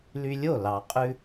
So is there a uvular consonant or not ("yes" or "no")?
yes